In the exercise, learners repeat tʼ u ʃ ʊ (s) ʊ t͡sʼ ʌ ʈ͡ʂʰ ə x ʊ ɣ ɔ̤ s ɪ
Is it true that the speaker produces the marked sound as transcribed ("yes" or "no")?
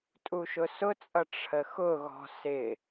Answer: yes